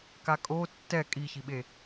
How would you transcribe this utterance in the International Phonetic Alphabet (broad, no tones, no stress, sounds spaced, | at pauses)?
k a kʼ o tː ɛ kʼ i ç i ɓ e